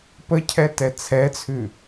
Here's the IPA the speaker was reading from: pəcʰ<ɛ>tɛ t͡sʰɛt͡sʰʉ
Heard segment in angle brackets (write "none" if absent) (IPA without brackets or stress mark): ɛ